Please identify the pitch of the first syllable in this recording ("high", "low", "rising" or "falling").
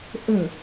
falling